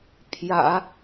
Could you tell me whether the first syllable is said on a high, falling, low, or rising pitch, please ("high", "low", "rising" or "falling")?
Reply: low